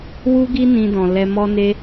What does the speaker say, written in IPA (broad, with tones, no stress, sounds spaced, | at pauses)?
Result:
w u˦ ɡ i˦ n ĩ˧ d ɔ̃˨ l ɛ˧ m ɔ˧ n e˧